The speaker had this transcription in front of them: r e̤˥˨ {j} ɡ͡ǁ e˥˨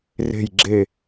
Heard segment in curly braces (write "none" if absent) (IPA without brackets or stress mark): j